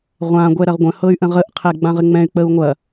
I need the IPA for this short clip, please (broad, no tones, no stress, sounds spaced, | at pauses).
ʁʷ ã ɡʷ ɛ ɾ ɐ ʁ ɡʷ ə̃ h ɤ y̯ ʔ ə̃ ʁ ə ʔ qʰ ɛ ɡ͡b ã ʁ ɪ ŋ͡m ɛ̃ y̯ k͡p ə u̯ ŋʷ ɐ